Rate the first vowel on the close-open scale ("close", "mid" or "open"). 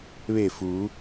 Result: mid